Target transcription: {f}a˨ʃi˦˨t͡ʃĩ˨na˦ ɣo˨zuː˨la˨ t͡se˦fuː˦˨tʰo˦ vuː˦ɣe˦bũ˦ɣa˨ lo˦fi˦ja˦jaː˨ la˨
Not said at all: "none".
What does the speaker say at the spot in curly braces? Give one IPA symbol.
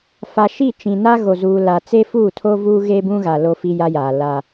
f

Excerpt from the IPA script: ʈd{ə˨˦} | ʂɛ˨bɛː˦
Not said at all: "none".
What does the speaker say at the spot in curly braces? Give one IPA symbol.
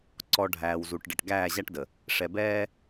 ə˨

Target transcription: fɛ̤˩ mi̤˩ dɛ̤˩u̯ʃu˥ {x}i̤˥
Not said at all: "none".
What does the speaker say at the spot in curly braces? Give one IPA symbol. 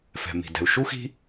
x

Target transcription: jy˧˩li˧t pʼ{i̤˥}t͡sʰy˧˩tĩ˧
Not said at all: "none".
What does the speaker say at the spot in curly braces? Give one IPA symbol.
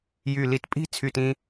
i̤˥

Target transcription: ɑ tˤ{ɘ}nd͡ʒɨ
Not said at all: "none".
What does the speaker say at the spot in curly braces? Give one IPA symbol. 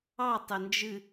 ɘ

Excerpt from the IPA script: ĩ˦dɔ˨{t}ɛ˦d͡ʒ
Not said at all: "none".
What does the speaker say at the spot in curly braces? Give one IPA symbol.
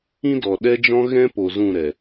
ɗ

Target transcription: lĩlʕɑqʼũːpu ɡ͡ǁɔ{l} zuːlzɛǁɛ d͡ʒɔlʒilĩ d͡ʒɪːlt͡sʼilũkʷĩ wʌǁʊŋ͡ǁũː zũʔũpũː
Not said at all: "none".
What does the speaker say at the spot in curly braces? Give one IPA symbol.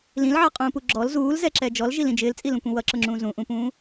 l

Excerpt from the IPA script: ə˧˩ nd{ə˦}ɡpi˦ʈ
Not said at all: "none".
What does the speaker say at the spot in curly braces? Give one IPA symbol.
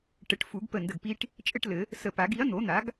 ə˧˩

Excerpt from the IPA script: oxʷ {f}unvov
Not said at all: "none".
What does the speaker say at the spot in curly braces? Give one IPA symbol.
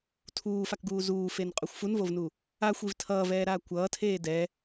f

